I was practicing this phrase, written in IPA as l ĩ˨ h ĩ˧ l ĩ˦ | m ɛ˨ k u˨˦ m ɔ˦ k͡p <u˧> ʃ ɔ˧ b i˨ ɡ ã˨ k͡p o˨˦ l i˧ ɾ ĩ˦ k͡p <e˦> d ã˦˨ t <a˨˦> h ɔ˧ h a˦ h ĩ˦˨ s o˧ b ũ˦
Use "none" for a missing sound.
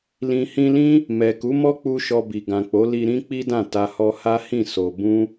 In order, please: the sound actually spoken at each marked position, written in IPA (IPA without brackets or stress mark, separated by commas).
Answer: u˦, i˦, a˧